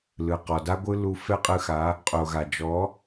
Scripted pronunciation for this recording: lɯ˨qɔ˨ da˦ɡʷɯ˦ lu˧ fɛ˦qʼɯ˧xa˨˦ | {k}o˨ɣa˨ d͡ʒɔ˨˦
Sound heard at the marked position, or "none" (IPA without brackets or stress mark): qʼ